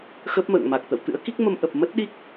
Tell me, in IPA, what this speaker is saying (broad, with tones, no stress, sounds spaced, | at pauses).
x ə˦˥ p̚ m ə̰ː˧˨ ŋ m a˨˩ k̚ t̪ ə̰˧˨ w t̪ ɨ̰˧˥ ə̯ k i˦˥ k̚ m ə˧ m ʔ ə˨˩ p̚ m ə˦˥ t̚ ɗ i˦˥ k̚